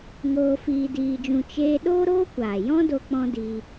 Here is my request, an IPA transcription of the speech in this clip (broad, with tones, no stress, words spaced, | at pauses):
ŋoː˧fiː˧diː˧d͡ʒũ˧ t͡ʃeː˧ ɗoː˦ɾoː˦kʷaː˨jɔ̃˦ do˦k͡pɔ̃˦diː˧